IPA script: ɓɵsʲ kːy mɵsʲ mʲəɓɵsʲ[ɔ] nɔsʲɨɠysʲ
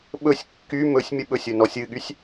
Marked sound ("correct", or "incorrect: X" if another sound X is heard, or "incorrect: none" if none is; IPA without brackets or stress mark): incorrect: ɵ